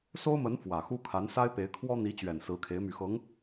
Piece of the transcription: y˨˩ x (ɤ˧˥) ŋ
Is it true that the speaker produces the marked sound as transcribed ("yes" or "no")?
yes